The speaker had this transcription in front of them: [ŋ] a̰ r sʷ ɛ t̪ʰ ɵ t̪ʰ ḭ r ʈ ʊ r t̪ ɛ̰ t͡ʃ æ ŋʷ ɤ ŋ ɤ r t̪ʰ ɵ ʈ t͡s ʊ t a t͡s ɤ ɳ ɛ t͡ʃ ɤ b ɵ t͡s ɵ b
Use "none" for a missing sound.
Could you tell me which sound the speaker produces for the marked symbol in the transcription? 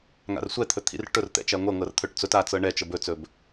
ŋ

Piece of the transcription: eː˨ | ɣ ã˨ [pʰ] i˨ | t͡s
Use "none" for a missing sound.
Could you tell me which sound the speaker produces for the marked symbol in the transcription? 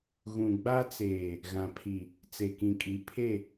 pʰ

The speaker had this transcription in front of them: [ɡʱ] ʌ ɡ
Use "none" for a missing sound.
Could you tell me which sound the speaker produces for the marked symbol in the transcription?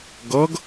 ɡ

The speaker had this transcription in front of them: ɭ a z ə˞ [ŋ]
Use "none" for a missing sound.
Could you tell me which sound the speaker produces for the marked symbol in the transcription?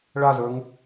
ŋ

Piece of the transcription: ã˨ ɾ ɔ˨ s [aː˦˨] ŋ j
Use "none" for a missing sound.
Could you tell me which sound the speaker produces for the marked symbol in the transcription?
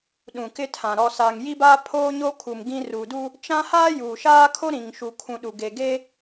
aː˨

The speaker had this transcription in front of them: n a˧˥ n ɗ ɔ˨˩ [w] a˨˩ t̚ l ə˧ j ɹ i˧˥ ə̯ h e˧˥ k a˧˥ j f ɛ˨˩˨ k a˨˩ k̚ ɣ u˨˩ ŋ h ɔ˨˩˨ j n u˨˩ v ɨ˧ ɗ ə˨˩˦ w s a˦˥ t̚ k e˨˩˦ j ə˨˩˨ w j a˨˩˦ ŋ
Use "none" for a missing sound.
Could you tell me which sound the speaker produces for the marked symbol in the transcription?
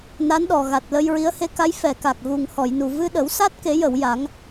ɣ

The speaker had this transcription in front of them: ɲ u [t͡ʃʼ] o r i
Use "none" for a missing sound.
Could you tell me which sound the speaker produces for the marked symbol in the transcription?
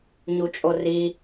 t͡ʃʼ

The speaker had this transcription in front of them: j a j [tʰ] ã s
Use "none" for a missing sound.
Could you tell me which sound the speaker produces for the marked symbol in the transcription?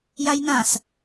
n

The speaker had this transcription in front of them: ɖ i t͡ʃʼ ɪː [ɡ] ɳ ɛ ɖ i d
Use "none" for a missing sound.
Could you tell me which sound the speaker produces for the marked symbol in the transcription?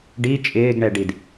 ɡ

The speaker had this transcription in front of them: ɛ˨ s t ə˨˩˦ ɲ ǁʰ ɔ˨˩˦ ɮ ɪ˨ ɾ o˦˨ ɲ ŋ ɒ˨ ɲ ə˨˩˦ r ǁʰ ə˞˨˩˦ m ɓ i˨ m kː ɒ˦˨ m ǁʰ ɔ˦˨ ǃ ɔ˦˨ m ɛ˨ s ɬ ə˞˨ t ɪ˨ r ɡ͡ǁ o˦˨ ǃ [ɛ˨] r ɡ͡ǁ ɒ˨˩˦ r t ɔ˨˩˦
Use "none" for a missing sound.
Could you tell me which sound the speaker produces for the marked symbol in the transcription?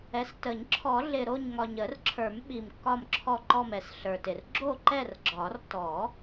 ɛ˦˨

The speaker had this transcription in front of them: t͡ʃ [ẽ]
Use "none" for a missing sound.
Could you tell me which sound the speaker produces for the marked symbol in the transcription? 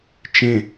ẽ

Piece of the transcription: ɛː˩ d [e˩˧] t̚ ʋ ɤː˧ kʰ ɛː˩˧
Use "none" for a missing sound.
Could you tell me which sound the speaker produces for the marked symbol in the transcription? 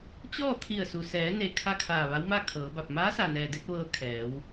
e˧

